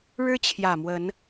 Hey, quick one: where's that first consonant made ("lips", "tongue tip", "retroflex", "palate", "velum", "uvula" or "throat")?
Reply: retroflex